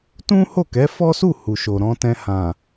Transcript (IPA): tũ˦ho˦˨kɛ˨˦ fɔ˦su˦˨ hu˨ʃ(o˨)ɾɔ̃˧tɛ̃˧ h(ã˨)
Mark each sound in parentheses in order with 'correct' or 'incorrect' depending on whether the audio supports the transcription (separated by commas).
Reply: correct, correct